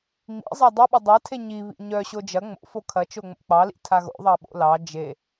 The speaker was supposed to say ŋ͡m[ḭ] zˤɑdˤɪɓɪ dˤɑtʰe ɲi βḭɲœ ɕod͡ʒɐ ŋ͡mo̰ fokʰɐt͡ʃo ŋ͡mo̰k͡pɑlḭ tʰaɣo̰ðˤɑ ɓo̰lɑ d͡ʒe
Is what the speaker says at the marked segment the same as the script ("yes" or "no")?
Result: yes